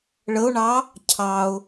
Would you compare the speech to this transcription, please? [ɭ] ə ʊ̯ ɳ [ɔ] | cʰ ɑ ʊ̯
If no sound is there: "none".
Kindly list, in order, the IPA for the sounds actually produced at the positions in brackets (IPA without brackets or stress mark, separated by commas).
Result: ɭ, ɑ